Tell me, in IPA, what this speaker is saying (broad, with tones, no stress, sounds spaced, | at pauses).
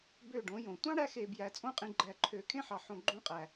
b ø˦˨ ɖ õ˨˦ j õ˨ tʷ ɑ̃˦ ɽ æ˧ x e˨ b j æ˨ t͡sʼ õ˧ qʼ ĩ˨ ɡ͡ǃ æ˨ ǃʰ ø˨ kʰ ẽ˦ ħ ɑ˨ ħ õ˨ ɡ͡ǃ õ˧ qʼ æ˨